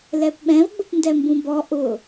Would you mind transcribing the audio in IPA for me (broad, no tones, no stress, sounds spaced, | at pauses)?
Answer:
l ɛ p ɓ ɛ̃ v ɡ͡b ʊ p n d ɛ m b ũ b ɔ ʔ ʊ